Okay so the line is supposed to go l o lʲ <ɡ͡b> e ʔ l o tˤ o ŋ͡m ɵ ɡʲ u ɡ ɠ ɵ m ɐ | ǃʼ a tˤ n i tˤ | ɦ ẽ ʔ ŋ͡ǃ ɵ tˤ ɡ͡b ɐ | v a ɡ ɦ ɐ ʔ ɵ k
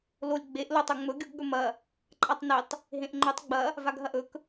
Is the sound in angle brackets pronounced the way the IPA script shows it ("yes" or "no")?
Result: yes